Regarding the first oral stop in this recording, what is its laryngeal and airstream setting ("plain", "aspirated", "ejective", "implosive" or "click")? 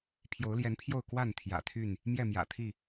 aspirated